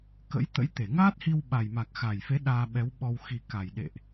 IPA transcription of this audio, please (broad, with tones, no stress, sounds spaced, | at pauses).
k ə̰˧˥ j t̪ ə̰˧˥ j t̪ e˧˩ ŋ aː˦˥ t̚ h i˧ w ɓ a˨˩ j m a˨˩ k̚ x a˨˩ j f e˨˦ ɗ aː˧ ɓ ɛ˨˦ w ɓ ɔ˧ w x i˨˩ k a˨˩ j ɗ ḛ˧˨ ʔ